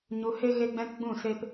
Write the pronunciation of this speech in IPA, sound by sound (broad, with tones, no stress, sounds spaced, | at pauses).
ɲ u˨ h e˧ ɣ e˦ ɡ͡b ɛ̃˦ k ɡ͡b ũ˦˨ s e˧ p